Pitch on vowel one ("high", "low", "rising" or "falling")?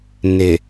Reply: low